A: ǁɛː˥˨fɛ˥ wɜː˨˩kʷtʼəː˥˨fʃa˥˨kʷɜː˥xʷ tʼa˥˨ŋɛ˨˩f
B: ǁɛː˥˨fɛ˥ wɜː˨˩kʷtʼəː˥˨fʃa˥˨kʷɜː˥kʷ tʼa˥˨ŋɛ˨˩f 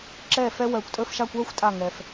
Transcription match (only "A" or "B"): A